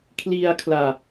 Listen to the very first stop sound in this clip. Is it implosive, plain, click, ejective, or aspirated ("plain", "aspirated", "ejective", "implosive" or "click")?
aspirated